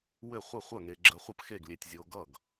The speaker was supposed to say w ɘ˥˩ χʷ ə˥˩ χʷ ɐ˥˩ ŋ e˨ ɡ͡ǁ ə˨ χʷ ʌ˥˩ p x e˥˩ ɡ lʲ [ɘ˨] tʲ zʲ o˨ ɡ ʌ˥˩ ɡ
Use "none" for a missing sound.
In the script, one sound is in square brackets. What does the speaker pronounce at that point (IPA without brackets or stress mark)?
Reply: e˨